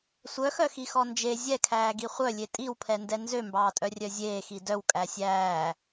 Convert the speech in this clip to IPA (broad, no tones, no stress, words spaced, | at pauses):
sʷœxœxixɔ nd͡ʒe zʲɛkʰæːɡi χʷœlʲe tʼiwpʰɛndɛ nzømbɑːtʼœrʲœ zʲeːxi dœwkʼæ sʲæː